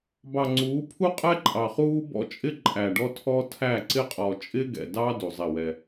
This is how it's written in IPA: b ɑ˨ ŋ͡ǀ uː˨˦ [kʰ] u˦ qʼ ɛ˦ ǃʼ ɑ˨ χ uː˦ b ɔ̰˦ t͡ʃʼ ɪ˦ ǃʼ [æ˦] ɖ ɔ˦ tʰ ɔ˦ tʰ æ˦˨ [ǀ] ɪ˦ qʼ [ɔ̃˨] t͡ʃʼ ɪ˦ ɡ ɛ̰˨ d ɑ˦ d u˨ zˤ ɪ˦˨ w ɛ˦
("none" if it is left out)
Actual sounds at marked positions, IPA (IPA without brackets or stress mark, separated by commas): pʰ, æ˨, ǀ, ɔ˨